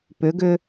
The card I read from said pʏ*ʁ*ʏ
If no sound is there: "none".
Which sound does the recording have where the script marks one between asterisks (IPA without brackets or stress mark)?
ɡ